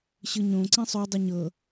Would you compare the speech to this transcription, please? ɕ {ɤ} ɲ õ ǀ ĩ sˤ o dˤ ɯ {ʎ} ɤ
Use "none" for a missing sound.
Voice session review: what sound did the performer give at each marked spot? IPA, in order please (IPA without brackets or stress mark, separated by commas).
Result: ɯ, ɲ